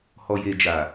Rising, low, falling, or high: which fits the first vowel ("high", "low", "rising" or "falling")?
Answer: low